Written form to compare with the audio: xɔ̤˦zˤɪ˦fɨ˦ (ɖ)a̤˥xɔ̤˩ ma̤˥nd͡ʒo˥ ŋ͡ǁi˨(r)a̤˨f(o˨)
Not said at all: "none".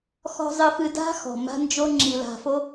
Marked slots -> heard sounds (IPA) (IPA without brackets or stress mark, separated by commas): d, l, o˥